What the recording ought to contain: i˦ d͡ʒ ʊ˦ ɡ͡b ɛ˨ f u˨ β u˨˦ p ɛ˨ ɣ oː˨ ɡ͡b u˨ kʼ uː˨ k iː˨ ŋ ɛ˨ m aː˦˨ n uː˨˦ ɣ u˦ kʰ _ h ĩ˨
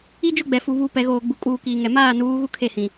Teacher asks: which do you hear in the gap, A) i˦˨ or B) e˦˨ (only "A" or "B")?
B